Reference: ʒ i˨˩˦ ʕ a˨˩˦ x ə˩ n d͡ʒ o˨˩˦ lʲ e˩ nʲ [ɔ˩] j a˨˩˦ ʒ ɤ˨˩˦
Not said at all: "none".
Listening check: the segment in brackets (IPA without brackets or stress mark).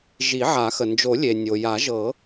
o˩